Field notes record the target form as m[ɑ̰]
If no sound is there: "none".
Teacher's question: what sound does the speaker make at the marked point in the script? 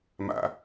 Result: a̰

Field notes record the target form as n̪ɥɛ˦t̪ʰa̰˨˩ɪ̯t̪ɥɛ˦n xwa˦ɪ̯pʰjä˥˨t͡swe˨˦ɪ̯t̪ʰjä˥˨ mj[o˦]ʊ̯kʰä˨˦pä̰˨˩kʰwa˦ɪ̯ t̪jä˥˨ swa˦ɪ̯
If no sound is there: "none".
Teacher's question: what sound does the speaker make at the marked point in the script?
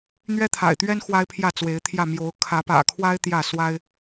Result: o˨˦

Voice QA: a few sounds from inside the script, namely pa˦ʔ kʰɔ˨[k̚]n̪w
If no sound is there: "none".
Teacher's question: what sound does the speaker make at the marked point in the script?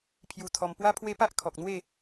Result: k̚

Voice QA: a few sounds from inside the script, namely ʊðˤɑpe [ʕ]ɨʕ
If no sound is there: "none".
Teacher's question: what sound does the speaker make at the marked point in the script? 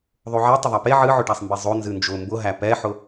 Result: ʕ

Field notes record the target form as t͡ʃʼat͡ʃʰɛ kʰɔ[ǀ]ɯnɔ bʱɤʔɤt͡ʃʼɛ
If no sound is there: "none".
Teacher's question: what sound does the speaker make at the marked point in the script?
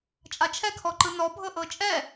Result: ǃ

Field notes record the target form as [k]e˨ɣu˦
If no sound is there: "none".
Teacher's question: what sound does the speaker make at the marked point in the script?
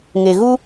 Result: ŋ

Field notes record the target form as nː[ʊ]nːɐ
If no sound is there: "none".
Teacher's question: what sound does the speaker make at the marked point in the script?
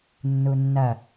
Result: u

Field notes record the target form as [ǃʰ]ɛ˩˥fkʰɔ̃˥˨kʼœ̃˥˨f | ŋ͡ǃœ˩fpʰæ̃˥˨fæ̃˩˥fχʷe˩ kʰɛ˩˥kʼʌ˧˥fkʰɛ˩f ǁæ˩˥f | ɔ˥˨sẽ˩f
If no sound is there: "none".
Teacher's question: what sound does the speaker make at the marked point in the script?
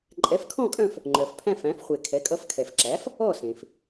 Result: ǃʼ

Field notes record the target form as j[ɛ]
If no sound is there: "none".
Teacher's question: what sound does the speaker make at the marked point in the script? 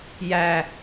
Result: æ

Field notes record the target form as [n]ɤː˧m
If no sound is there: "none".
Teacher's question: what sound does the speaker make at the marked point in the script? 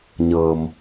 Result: ɲ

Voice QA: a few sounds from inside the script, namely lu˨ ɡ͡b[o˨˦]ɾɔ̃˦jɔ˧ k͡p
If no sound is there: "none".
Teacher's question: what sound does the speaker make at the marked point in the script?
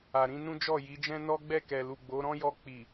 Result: o˨˦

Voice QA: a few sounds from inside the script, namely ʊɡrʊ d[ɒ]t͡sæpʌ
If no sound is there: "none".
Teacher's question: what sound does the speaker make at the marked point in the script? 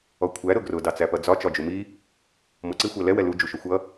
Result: ɑ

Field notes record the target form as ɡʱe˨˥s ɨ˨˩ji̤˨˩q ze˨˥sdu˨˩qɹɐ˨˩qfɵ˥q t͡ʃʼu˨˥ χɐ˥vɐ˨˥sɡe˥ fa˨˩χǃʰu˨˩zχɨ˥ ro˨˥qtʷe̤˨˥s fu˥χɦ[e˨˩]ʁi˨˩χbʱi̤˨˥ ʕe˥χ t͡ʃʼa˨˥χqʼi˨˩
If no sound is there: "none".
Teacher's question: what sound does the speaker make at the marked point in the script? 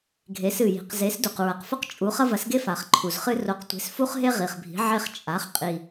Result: e˥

